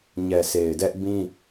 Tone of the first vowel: low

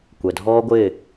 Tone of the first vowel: low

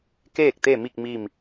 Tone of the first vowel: falling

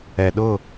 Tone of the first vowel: low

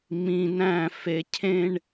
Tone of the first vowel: low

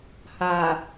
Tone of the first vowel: low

